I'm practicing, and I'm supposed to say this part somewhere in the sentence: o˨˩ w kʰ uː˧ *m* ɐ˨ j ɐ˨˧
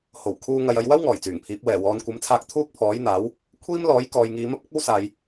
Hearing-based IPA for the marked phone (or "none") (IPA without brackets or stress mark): ŋ